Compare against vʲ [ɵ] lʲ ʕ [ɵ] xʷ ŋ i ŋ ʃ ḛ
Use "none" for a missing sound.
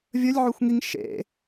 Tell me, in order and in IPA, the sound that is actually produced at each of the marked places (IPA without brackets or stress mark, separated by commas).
ɵ, ø